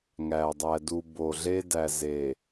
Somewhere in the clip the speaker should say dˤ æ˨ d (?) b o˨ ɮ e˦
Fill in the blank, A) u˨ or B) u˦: A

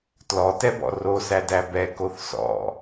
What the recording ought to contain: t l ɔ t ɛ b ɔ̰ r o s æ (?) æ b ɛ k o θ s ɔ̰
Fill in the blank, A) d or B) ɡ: A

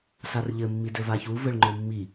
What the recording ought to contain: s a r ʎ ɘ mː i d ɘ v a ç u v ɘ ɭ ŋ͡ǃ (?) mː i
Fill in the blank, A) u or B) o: B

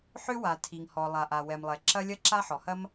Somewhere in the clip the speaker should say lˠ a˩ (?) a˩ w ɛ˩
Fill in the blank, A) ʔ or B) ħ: A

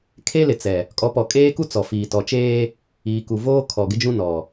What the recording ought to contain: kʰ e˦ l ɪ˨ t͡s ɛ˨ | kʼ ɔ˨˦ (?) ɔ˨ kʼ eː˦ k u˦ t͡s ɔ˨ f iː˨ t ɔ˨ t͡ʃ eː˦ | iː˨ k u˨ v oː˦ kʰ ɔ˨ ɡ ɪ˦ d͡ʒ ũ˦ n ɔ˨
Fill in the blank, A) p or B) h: A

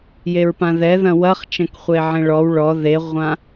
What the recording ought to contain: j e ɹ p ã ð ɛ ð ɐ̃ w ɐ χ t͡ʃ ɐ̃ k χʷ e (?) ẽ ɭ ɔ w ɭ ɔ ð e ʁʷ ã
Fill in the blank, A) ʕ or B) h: A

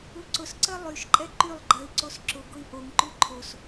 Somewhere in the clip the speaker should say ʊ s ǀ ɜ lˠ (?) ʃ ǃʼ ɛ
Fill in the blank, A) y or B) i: A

